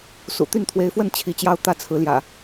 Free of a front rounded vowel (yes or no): no